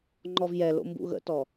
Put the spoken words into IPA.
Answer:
ŋ͡ǃɔvjɛlo̰ mbṵɣə̰tɔ

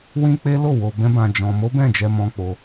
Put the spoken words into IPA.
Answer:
wĩ˦k͡pe˦lo˦˨ wo˧bɛ̃˦bã˧ d͡ʒɔ̃˧ mo˦bɛ̃˦˨d͡ʒɛ˧ mɔ̃˦k͡po˦

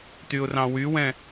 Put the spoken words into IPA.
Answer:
tyʊ̯rɑ̃wywɛ̃

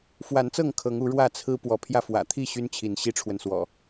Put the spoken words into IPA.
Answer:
fwa˨˦nt͡sɤ˥˨ŋ kʰɤ˨˦ŋu˨˦ ɻwä˥˨t͡sʰɹ̩˦ pwɔ˨˦pʰjä˧fwä̰˨˩ t̪ʰi˥˨ ɕy˦nt͡ɕʰi˨˦n ɕi˦ʈ͡ʂʰwə˨nswɔ̰˨˩

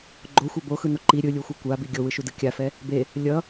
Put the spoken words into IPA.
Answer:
ɡ͡ǃoxʷɛ boxɯno ǃi ɾʲɯlʲuxʷɛ kʷabi ɡʲowɯʃudɯ kʲafɛ | be | lʲʌ

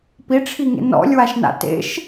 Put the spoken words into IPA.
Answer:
piʈ͡ʂʰiŋḛ nɔ̰lʲwaʃna̰ tḛʃ

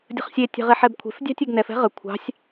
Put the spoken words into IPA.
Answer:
dʲə̤χsʲe tʲɛ̤ʁeħɛbkʷʰe̤f dʲɑ̤tʲeɡnɛf ɛ̤ʁə kʷʰɑ̤sʲ

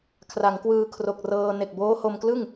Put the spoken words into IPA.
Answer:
kʰra˩˦ŋkwɯː˧ kʰro˨˩k̚rɤː˧ ne˨˩k̚boː˦˥ho˧mklɯ˥˩ŋ

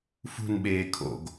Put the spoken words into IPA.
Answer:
fṳnɓeː kʰo̰ɡ

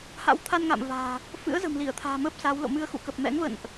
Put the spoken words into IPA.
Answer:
ha̰˧˥wt̪ʰa˧nŋa̰ː˧˨m va̤ː˨˩ | fɨ̰˧˥ə̯zə̤˨˩mli˧˩ə̯t̪ʰa̤ː˨˩ məː˦˥p̚ saː˨˦wlo̰˧˨ mɨ˧ə̯xṵ˧˨ kə˨˩p̚mɛ̰˧˥ŋvə̰˧˨nʔ

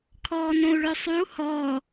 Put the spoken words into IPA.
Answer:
kʰɔːnõu̯ɭœsˤyu̯ hɔː

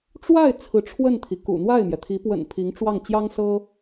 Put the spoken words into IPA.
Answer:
ʈ͡ʂwa˥˩ɪ̯ t͡sʰɹ̩˧˥ʈ͡ʂʰwə˥˩nt̪ʰi˩ kṵ˨˩n̪wa˥˩ɪ̯mjɛ˩t̪ʰi˧˥ pwə̰˨˩n pʰi˧˥ŋʈ͡ʂwɑ˥˩ŋ t͡ɕjɑ˥ŋsɤ˥

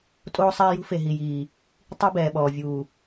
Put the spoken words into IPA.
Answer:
tʼoː˦sˤɛː˦jṳ˦ fe˨ɦi˨jiː˨ | tˤi˦bɛː˨ɓɔː˨vʲuː˨

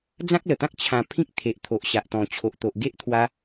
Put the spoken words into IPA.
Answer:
d͡zã˦k̚lə˨˩t̪ã˦k̚ t͡ɕʰã˧ pʰĩ˦k̚t̪ʰe˨ʔ t̪ʰo˨ʔɕa˨ʔt̪ɔ̃˨˩ t͡ɕʰo˨ʔt̪o˨ʔ ɡe˦ʔt̪ʰwa˧

